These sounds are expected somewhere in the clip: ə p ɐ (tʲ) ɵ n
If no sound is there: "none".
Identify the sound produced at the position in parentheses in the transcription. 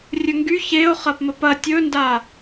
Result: tʲ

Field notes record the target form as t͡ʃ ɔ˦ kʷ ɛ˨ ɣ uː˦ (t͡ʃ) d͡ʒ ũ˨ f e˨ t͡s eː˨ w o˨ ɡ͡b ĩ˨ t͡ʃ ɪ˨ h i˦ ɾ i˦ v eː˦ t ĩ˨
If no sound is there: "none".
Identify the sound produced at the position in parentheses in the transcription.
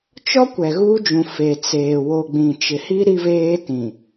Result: none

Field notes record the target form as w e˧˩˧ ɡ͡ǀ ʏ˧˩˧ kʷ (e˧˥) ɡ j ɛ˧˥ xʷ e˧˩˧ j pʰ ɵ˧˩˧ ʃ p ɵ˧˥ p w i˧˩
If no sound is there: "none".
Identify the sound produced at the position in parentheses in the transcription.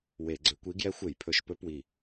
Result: i˧˥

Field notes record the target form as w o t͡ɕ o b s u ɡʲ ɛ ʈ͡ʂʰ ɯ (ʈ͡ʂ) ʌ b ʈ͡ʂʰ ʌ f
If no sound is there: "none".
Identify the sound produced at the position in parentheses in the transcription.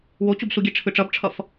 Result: ʈ͡ʂ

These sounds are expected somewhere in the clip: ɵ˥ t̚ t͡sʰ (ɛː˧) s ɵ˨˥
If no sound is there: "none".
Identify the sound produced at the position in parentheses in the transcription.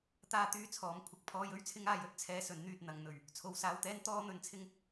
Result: ɛː˧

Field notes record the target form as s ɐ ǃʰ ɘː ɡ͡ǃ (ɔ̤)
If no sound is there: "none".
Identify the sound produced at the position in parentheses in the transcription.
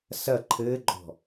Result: ɔ̤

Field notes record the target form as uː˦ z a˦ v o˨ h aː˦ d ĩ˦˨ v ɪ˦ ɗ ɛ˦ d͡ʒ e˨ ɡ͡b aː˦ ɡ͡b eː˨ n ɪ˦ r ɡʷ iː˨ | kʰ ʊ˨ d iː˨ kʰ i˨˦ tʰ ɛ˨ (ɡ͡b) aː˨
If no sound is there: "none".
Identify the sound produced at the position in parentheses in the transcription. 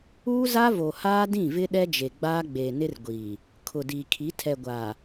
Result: ɡʷ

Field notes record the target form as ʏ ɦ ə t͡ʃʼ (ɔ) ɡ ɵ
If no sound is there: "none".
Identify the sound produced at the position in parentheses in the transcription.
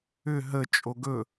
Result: o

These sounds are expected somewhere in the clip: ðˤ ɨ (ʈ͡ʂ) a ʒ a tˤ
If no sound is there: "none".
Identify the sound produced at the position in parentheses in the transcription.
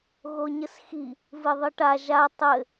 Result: ʈ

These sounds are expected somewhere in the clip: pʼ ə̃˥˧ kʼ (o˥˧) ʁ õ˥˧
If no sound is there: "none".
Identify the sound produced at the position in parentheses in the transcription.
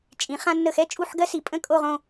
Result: o˥˧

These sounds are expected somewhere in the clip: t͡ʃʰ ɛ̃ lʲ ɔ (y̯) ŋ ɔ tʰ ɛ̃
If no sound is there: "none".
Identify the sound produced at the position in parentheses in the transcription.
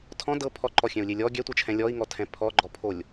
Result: i̯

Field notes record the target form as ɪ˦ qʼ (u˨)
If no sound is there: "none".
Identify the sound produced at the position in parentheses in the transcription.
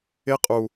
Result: u˨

